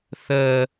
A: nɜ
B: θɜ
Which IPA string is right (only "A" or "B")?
B